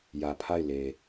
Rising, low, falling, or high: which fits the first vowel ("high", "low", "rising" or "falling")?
low